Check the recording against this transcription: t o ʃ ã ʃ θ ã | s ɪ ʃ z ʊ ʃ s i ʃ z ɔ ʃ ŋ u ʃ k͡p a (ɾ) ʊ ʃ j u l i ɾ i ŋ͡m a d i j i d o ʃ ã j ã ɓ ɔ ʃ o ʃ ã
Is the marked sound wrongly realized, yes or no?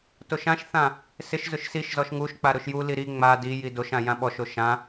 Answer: no